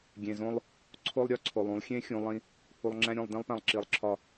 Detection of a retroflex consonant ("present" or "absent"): absent